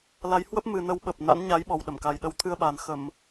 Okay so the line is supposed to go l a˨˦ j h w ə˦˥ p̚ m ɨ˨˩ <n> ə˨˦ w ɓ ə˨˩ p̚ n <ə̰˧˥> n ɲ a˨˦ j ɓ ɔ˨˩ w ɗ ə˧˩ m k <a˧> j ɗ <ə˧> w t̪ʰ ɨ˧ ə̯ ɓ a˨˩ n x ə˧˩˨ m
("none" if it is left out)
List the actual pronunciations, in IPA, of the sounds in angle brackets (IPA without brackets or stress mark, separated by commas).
n, a̰˧˥, a˨˩, ə˨˦